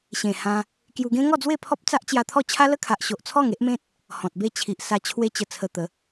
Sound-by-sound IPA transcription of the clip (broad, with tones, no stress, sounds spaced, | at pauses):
ɕ ẽ˨˩ h ã˧ | k j u˧ ɡ ẽ˦ ŋ ɔ˥˧ d͡z w e˥˧ pʰ ɔ˦ p̚ t͡s a˦ ʔ t͡ɕ j a˧ t̪ʰ ɔ˥˧ t͡ɕʰ a˦ l ə˦ kʰ a˨ ʔ ɕ o˨ ʔ t͡sʰ ɔ˥˧ ŋ e˦ ʔ m ẽ˦ t̚ | h ɔ̃˨ t̚ b e˥˧ t͡ɕʰ i˨ ʔ s a˧ t͡ɕʰ w e˧ t͡ɕ ə˨˩ t͡sʰ ə˧ t̪ ə˨˦